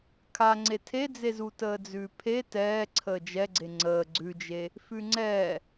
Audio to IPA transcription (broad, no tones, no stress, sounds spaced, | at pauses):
kʰ a ŋ͡ǀ e tʰ e d͡z e z u t əː d͡z ʉː pʰ e t ɛː ǀʰ əː d͡ʒ ɛ ɡ͡ǀ e ŋ͡ǀ əː ɡ͡ǀ ʉ d͡ʒ e | f ʉ ŋ͡ǀ ɛː